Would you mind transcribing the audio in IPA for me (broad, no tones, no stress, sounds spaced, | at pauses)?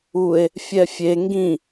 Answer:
u e̯ | fʲ ɛ fʲ e ŋ ɡ ĩ